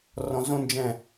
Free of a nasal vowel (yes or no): no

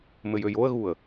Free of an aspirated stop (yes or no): yes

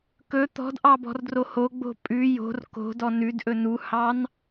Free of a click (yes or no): yes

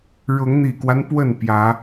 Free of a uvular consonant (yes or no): yes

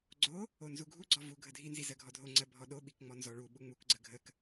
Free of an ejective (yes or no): yes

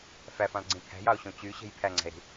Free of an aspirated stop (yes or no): no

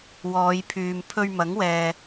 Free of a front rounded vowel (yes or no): no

